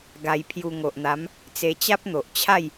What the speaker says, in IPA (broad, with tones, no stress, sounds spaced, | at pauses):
ɡ a˧ j pʰ j u˧ ŋ o˨ ʔ n̪ a˨˦ m | t͡s e˧ t͡ɕ a˦ p̚ n̪ o˨ ʔ t͡ɕʰ a˥˧ j